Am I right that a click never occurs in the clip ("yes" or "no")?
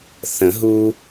yes